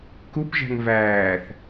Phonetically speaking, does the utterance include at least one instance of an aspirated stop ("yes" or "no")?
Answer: no